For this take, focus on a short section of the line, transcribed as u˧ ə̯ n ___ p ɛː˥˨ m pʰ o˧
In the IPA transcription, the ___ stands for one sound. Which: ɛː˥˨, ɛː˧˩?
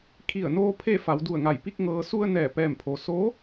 ɛː˧˩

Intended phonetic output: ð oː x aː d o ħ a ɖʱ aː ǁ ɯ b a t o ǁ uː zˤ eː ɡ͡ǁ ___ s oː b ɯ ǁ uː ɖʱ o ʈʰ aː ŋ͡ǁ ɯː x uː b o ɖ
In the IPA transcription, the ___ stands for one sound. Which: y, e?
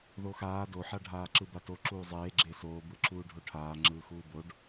e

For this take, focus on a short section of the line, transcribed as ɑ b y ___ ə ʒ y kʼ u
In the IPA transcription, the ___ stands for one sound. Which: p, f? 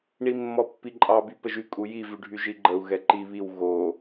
p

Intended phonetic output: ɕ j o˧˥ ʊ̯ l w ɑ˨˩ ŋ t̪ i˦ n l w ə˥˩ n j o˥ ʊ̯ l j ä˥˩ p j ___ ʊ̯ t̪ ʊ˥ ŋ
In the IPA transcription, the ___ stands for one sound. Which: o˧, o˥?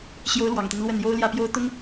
o˥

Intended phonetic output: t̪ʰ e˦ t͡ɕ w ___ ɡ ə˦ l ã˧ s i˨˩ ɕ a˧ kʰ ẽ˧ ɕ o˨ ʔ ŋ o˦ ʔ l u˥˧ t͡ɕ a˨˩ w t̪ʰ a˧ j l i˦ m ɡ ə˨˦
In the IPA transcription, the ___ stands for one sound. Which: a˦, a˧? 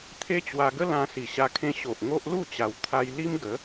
a˧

